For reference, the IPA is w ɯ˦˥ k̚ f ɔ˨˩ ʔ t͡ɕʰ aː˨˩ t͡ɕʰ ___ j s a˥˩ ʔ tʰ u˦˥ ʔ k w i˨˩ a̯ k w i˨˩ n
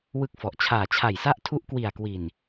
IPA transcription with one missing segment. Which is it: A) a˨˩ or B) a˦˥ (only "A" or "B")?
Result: A